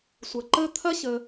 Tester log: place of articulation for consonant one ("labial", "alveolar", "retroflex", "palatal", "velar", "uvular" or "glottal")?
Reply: alveolar